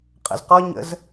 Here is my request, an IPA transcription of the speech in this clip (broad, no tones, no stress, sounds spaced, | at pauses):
qʼ ə̰ z q ɔ ɲ ə̰ z